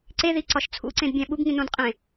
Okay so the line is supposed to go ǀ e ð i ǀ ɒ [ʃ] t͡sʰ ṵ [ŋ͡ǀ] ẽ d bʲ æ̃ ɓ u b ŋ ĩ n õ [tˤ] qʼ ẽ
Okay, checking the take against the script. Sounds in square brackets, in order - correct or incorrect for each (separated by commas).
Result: correct, incorrect, incorrect